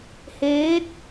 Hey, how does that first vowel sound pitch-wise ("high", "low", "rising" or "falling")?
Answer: rising